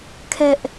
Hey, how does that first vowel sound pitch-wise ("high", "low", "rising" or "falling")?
high